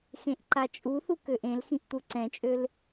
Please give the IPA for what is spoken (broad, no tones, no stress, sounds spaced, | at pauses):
x ẽ ʔ ǃ a t͡ʃʼ u θ u k ø ʔ ẽ l x ĩ ʔ t̪ u ǀ ɛ̃ t͡ʃʼ ø l